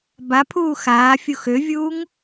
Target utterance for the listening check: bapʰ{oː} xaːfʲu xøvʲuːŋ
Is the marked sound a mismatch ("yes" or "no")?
yes